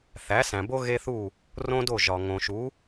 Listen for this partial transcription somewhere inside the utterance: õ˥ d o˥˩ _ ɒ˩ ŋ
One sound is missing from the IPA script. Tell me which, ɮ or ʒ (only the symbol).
ʒ